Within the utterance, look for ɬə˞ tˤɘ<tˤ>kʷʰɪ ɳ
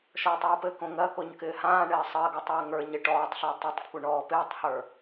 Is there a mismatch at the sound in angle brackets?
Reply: no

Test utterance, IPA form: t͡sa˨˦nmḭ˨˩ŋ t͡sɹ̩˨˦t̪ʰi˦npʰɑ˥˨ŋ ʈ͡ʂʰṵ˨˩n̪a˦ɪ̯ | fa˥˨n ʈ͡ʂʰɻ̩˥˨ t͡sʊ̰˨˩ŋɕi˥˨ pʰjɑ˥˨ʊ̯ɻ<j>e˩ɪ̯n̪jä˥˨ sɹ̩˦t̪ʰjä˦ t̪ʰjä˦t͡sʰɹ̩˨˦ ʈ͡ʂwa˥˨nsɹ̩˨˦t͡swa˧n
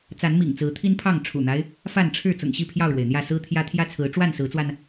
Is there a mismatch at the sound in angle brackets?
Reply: yes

